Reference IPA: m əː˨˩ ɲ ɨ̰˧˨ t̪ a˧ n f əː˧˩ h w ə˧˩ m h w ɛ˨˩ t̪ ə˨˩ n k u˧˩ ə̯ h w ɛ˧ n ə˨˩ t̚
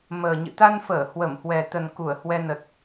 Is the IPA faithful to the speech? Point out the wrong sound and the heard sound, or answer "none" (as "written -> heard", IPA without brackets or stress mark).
none